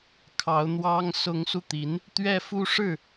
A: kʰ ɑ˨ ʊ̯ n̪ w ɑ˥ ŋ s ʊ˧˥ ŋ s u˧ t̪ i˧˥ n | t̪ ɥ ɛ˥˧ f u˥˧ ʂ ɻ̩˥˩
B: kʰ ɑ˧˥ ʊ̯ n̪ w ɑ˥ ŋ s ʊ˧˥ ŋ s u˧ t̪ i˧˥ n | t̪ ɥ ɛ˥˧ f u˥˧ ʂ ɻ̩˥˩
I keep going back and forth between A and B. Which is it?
B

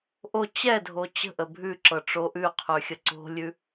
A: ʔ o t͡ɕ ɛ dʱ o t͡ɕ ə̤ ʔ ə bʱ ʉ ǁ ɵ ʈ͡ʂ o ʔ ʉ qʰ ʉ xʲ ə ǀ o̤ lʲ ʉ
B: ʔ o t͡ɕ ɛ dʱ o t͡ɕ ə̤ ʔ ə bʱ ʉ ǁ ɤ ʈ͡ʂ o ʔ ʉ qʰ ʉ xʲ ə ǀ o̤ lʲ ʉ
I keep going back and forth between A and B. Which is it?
B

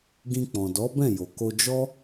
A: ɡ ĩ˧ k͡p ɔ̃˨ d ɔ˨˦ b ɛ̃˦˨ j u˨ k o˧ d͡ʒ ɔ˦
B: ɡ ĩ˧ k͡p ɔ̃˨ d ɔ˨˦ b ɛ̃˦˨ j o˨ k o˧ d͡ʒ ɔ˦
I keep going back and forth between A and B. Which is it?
B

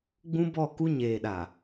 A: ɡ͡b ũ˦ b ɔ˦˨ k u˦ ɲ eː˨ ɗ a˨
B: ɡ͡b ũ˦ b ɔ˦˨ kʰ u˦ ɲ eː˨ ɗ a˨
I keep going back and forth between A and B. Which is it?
A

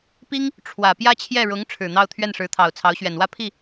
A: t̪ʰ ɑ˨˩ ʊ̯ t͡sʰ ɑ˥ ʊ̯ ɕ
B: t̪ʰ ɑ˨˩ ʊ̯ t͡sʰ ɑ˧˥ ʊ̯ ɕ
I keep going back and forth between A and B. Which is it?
B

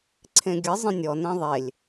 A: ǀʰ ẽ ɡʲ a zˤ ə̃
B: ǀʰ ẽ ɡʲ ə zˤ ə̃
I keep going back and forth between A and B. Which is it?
B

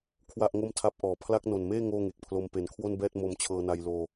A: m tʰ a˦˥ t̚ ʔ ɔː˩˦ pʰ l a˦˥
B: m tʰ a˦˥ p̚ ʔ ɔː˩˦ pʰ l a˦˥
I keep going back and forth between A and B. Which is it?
B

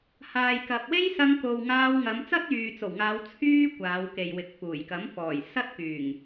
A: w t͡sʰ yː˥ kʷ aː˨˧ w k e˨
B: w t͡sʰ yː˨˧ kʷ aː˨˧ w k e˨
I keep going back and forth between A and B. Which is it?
A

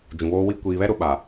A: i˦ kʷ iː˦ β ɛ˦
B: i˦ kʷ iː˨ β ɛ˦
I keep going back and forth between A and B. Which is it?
B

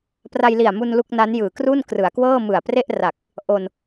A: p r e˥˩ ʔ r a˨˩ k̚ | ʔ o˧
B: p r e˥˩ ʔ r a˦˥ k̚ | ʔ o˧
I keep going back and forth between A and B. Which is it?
A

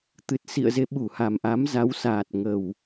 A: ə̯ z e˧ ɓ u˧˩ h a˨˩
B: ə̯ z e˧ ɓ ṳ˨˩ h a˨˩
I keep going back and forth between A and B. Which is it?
A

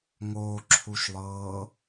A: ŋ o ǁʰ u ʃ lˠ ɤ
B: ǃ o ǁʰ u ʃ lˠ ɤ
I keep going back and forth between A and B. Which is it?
A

